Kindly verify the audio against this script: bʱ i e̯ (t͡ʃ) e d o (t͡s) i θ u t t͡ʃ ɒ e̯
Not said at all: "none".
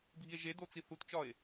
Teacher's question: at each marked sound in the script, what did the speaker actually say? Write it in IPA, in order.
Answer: ʒ, t͡s

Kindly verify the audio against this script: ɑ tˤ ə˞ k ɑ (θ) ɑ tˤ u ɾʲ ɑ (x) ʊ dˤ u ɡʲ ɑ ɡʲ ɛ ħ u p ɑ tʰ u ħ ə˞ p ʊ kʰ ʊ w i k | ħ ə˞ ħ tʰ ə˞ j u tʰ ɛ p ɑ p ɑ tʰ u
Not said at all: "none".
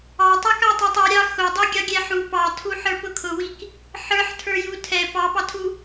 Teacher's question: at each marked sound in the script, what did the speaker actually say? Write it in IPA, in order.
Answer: tˤ, x

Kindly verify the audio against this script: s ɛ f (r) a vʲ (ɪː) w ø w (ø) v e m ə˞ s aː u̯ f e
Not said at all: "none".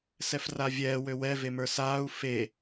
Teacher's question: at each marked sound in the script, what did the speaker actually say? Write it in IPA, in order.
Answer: r, ɛː, ɛ

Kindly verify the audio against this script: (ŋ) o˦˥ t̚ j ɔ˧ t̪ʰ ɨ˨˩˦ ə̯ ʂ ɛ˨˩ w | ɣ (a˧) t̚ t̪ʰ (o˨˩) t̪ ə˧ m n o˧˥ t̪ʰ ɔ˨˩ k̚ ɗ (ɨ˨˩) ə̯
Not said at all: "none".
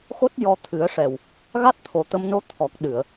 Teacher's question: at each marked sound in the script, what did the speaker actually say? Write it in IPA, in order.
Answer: x, a˦˥, o˨˩, ɨ˨˩˨

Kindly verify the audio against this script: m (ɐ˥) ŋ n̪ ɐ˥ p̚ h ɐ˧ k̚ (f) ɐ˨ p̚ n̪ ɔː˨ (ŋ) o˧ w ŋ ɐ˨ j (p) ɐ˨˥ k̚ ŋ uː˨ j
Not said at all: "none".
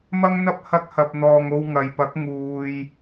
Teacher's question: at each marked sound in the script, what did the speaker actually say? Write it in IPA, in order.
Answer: ɐ˥, h, ŋ, p

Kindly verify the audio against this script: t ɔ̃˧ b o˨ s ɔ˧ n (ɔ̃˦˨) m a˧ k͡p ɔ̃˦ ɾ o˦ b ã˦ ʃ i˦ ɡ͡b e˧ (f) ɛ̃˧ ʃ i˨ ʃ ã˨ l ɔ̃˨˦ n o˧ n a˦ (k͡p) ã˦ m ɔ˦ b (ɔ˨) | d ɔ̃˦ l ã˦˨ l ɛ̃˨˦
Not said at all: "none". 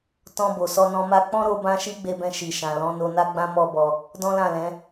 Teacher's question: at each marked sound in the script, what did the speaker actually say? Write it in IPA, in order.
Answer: ɔ̃˧, b, ɡ͡b, ɔ˧

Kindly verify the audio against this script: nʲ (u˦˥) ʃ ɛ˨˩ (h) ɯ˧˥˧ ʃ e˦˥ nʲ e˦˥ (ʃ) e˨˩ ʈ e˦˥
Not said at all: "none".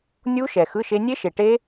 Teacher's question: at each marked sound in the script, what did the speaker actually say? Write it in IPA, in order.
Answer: u˦˥, x, ʃ

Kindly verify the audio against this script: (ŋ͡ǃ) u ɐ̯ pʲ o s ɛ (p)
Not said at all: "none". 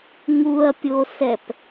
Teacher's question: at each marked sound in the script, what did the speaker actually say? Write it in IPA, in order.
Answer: ŋ, p

